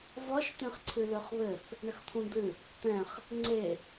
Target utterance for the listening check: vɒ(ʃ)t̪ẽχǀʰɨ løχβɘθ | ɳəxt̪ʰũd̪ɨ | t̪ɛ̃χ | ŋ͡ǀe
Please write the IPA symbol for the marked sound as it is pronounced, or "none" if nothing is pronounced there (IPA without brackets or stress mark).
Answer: ʃ